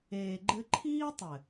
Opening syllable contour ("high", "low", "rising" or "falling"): low